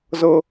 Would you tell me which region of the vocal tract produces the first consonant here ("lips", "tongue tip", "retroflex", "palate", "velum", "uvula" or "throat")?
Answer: tongue tip